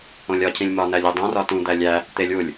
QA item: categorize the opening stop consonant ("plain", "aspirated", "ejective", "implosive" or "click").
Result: aspirated